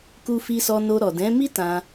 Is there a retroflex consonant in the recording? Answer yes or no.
no